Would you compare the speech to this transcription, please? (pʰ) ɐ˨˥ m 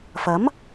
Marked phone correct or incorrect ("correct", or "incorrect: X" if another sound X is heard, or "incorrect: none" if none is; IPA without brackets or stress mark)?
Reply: incorrect: f